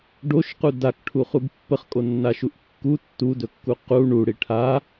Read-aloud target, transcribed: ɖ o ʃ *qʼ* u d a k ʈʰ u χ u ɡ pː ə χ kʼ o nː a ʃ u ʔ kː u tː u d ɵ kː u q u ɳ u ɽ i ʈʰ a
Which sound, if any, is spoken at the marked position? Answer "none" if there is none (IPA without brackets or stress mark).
q